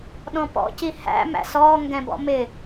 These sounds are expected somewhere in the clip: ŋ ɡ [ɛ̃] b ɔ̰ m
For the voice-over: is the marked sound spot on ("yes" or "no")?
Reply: yes